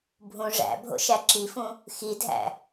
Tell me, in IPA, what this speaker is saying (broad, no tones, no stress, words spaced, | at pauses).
bʱũ ʐæ̰ bʱo̰ʃæǁifũ | xidʱæ̰